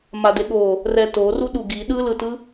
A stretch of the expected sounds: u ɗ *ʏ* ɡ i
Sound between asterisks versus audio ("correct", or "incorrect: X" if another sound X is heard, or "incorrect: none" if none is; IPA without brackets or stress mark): incorrect: u